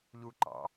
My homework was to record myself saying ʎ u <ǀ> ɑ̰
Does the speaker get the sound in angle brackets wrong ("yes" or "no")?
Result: yes